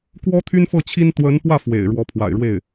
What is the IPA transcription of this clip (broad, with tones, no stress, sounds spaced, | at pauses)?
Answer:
k w ɔ˥ t̪ʰ y˥ n f ɤ˥˩ t͡ɕʰ i˥ n t̪ w ə˧˥ n p w ä˥˩ f w ḛ˨˩ ɪ̯ ɻ w ɔ˧˥ pʰ w a̰˨˩ ɪ̯ ɻ w e˥˩ ɪ̯